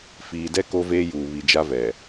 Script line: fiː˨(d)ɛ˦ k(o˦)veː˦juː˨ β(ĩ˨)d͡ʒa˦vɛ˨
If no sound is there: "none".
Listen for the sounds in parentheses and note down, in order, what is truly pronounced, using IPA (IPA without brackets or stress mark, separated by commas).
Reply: d, o˦, i˨